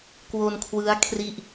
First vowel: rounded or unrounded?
rounded